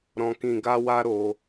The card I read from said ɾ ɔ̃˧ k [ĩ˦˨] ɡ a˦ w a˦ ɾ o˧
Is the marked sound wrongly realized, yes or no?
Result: yes